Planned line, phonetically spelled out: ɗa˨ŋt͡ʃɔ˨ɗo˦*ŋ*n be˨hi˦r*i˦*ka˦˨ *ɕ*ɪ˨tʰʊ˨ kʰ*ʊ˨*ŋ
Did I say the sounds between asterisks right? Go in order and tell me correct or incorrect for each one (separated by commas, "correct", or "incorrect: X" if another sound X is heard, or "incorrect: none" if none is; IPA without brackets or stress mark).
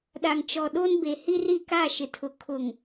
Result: incorrect: none, incorrect: i˦˨, incorrect: ʃ, correct